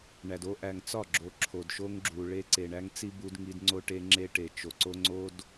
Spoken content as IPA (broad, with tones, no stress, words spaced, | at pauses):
ɳæ˨do˦ ʔæ˨ŋt͡sɒ˦˨ɡ͡ǁo˨ ǁʰo˨dʃo˦ŋɡ͡ǁu˨ ɭe˦ǀe˨ɳæ˦ŋt͡si˦ bu˦dŋi˦d ŋ͡ǀo˦ʈe˦ŋ͡ǁe˦ʈe˨ t͡ʃo˨ǀo˦ ŋ͡ǀo˦d